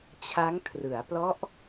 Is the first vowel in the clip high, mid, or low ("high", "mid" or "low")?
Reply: low